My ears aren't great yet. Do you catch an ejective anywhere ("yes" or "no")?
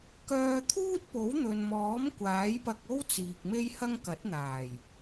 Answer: no